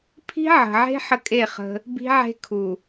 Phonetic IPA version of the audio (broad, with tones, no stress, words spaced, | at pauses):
pʰi̤˦ʕə̤˨ʕe̤˦ ħə˦kʼe˦˨χə̤˦ | bi̤˦ʕe̤˦ kʰu˨